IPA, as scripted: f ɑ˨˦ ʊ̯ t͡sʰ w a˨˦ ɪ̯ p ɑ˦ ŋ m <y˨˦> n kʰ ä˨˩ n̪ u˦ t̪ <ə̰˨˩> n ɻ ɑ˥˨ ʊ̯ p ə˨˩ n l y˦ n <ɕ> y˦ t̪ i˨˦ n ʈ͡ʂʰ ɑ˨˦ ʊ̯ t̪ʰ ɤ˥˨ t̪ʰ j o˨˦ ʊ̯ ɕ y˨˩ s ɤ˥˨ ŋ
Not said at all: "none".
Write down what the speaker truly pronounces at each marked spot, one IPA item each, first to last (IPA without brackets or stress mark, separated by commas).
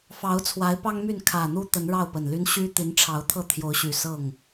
y˥˨, ə˨˦, ɕ